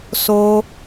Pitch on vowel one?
high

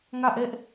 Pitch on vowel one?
falling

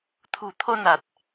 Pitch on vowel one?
low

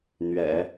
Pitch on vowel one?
low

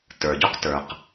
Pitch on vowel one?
low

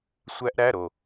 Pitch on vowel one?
high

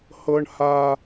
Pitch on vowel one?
high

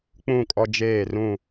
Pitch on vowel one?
falling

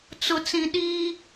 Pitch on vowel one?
low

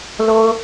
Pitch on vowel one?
high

